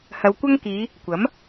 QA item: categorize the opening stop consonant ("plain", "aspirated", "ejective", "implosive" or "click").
plain